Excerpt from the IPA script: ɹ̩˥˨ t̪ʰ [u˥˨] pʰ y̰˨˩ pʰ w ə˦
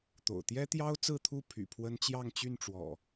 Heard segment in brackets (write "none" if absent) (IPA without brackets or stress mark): u˥˨